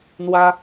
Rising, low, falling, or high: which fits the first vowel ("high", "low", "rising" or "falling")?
high